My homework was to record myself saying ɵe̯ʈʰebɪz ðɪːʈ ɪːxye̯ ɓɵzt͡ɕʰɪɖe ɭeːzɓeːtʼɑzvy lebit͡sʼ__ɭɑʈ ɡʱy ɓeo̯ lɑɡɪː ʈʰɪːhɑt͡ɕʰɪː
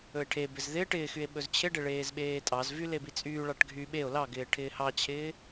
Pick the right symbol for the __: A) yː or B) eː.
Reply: A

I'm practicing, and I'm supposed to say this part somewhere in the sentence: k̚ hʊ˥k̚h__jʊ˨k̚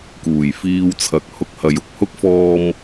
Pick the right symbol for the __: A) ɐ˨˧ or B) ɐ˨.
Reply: B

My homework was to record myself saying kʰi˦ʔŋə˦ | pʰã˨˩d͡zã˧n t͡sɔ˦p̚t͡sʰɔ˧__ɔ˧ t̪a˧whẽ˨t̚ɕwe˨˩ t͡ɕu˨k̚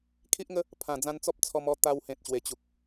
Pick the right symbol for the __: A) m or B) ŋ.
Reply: A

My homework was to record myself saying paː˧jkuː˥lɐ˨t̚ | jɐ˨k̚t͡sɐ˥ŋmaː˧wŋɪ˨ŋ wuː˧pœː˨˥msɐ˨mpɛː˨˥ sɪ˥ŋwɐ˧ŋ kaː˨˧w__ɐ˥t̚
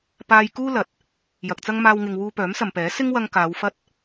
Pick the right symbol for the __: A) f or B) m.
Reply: A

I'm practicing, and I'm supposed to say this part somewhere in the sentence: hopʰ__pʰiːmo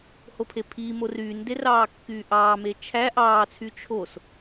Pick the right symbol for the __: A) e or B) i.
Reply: A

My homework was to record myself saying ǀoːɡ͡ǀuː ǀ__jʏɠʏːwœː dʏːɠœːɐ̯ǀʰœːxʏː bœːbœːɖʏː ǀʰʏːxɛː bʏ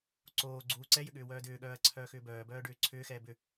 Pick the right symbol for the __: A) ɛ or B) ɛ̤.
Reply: A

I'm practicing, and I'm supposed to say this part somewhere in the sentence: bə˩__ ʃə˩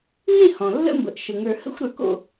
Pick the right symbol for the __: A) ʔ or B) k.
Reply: A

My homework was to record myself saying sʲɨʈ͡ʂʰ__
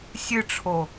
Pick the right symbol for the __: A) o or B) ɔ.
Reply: A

